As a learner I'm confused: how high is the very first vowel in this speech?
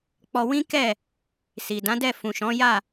mid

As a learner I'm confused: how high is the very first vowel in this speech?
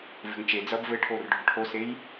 mid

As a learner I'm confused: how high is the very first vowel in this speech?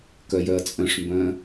mid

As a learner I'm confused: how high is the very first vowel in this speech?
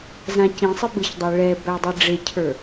low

